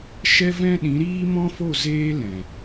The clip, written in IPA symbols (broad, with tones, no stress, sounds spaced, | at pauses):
ʃ ɛ˦ v ɛ̃˦ ɗ ĩ˨˦ ɾ iː˦ m ɔ̃˦ f o˦˨ z eː˦ l ɛ̃˨